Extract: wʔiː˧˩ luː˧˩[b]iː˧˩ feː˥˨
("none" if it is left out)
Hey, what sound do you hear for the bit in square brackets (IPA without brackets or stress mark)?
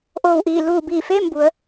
b